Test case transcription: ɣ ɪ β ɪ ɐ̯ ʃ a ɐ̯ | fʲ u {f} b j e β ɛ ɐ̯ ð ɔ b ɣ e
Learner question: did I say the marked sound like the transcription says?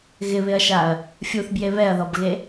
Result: no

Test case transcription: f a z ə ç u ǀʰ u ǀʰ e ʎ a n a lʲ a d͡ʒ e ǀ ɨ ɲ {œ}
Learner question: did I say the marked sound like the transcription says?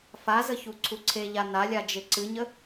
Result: no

